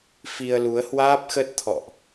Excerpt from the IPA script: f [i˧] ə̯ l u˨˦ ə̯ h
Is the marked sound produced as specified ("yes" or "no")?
yes